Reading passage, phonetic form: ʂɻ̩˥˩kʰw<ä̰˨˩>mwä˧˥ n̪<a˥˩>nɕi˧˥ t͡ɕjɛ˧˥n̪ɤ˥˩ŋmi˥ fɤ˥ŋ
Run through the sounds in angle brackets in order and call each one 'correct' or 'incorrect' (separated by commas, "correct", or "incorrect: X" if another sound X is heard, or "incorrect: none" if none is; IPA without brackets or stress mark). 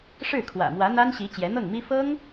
correct, incorrect: a˥